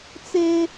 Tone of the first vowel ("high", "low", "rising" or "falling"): high